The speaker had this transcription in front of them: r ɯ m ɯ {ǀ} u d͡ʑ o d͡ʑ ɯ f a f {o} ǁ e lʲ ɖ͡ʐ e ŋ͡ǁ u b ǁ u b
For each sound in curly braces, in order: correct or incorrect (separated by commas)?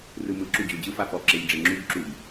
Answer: incorrect, incorrect